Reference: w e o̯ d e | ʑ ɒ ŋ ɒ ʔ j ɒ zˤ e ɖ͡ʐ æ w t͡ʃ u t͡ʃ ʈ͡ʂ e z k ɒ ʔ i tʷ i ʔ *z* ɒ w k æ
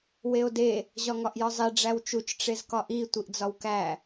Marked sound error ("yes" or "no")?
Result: yes